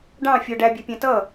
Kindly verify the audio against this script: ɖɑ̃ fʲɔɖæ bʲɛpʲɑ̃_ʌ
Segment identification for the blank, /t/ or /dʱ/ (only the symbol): t